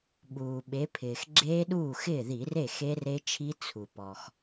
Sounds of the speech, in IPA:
ɓuː˩ɓe˩˧ pʰɪː˩xɡ͡ǁeː˦˥ɗuː˥˩ xɪː˥˩ði˧˩˧re˥˩ xe˦˥re˦˥t͡ʃʰi˦˥ t͡sʰu˩ pɔ˩x

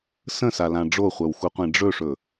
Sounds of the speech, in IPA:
sə̃salã ɖ͡ʐoχʷœwxuqʷẽ ɖ͡ʐɵʂɵ

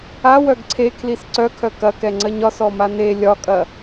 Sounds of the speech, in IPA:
a wœɡǀʰe kʰlisǀœkʰœ kɐkɛŋ͡ǀɜɲ ɒsɔ mane lʲɒkʼɐ

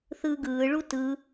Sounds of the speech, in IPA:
θɯːɡɯːɭu tɯ

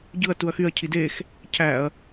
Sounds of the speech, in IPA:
ɟɯɐ̯ tuɐ̯xyɐ̯ cʰidex | cʰæɐ̯

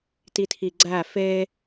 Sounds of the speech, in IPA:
titʰiɡ͡ǀæ fe

